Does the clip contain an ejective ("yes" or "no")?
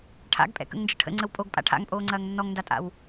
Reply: yes